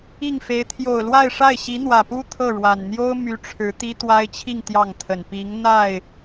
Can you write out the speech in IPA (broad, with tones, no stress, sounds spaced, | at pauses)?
i˥˩ ŋ f e˧˥ ɪ̯ t̪ʰ j o˨˩ ʊ̯ l w a˥˧ ɪ̯ ʂ a˥˩ ɪ̯ ɕ i˧˥ n̪ w ä˨˩ p u˥ t̪ʰ ɤ˥˩ ɻ w a˨˩ n n̪ j o˥ ʊ̯ m y˥ ʈ͡ʂʰ ɻ̩˧˥ t̪ i˥ t̪ w a˥ ɪ̯ t͡ɕʰ i˥˧ ŋ t̪ j ɑ˥˩ ŋ t̪ʰ ə˨˩ n p i˧˥ ŋ n̪ a˥˩ ɪ̯